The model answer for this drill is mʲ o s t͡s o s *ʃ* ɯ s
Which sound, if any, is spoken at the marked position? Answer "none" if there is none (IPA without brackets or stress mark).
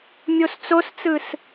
t͡s